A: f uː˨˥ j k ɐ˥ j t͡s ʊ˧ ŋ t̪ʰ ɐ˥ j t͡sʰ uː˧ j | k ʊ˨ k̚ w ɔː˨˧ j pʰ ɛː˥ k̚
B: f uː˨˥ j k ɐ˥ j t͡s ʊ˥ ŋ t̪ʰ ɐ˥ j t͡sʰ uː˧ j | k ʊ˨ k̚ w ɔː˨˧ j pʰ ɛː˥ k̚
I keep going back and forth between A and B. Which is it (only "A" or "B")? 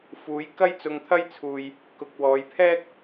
A